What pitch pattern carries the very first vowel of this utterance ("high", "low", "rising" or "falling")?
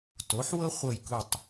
rising